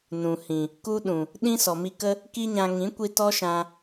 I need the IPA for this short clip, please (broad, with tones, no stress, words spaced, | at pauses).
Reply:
nũ˨hĩ˨ | ku˦ɗũ˨ | ɗĩ˦sɔ˨mi˧kə˦ | ki˦ɲã˧ ŋĩ˨˦ kʷi˧ tɔ˦ʃã˧